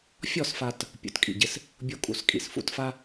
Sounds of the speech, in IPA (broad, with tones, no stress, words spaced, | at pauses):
fʲɔ˥˧sfa˧t | pʲṵ˩˧tkʼḭ˧˩ɟɪ˧s | bʲo˥kʼṵ˧skʼḭ˩˧s fṵ˥˧tfa˥